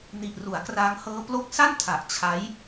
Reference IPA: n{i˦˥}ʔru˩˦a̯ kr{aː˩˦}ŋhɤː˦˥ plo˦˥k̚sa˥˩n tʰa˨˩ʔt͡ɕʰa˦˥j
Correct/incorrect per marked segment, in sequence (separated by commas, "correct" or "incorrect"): incorrect, incorrect